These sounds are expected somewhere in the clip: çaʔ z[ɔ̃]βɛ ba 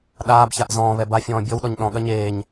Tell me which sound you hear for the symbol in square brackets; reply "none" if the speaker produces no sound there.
ɔ̃ː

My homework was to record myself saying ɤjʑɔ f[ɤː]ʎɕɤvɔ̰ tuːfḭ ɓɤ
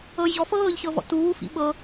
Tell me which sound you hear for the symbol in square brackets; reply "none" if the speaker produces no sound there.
ɤː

